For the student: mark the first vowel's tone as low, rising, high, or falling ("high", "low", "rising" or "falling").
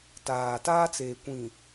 low